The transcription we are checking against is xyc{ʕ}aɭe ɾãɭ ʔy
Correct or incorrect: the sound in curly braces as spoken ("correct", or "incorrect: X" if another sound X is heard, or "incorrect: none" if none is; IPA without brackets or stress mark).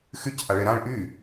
incorrect: ʔ